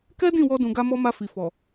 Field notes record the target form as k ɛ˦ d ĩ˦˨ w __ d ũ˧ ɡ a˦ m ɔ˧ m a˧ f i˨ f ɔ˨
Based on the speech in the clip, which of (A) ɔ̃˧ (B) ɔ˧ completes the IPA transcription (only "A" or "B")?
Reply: B